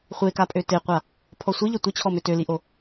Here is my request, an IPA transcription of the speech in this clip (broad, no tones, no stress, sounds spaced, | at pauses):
χʷ e k a pʼ ø t e qʷ a | pʰ ɔ sʷ i ʎ ɐ tʷ ɪ t͡ɕʰ ɔ m ø t ø l i ʔ o